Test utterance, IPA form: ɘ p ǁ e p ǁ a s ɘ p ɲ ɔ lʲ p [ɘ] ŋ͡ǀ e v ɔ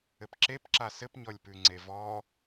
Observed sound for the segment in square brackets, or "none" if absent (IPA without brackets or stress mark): ʉ